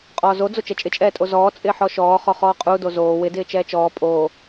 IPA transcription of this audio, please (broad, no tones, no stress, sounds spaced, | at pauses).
qʼ ɔː z o d͡z o t͡ʃ ɛ t͡ʃʼ ɪ t͡ʃʼ ɛː tʼ o z ɔː t͡sʼ ɪː ħ ɔ ʃ ɔː χ ɔ χ ɔː qʼ u d o z oː w ɪ d ɪː t͡ʃ ɛː t͡ʃ ɔː pʼ oː